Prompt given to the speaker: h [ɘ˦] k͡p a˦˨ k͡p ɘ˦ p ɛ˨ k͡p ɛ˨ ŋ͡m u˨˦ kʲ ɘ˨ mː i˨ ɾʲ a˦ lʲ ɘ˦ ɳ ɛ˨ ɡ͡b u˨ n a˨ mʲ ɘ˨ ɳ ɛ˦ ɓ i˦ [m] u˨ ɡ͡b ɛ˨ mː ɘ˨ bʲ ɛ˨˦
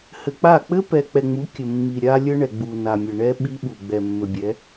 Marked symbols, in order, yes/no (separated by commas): no, no